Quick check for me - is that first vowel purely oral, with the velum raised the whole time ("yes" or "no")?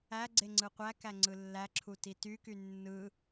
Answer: yes